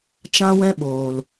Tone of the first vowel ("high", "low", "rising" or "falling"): high